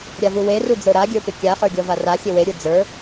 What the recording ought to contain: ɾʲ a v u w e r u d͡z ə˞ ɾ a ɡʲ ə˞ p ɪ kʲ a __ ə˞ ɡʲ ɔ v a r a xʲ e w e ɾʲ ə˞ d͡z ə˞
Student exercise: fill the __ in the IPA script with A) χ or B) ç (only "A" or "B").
A